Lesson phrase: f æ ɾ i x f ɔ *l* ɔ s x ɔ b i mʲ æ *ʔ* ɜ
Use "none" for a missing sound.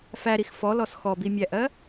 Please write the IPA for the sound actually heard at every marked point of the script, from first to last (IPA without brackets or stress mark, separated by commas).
l, ʔ